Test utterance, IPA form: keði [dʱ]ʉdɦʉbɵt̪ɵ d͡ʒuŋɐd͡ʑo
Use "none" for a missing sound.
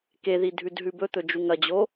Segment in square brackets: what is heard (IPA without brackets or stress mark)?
dʱ